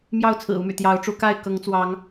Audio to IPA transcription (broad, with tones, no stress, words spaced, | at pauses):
mjɑ˥˨ʊ̯t͡sʰɹ̩˨˩ u˨˦my̰˨˩ t̪jɑ˨˦ʊ̯ʈ͡ʂu˨˦ka˥˨ɪ̯ kɤ˨˦ŋt͡swɑ˨˦ŋ